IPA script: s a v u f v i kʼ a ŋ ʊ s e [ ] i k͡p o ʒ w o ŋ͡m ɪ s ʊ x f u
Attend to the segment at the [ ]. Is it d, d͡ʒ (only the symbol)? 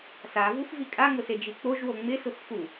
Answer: d͡ʒ